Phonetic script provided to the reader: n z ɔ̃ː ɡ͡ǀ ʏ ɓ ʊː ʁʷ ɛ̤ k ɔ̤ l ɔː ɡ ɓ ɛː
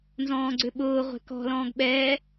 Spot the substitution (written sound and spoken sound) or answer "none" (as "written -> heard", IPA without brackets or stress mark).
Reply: ɔː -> ɔ̃ː